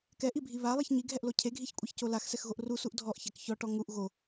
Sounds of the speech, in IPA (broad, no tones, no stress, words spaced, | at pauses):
kɛʔibʱi βalˠiç ɲiɡʱɛʔlo cʰeɡʱiçkʷʼɛçco laxsɛxɣoʔ rusuʔ dʱɔʔçɛk çɔʈɔ ŋuʔ ɣo